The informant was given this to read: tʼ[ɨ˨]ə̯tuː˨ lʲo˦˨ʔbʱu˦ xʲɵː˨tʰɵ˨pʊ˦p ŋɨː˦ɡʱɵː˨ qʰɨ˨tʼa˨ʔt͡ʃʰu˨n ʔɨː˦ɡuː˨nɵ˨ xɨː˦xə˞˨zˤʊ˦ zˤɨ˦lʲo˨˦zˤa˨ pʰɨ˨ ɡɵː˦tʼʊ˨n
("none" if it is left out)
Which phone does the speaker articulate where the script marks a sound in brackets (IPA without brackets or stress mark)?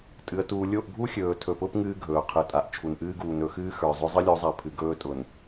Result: ɨ˨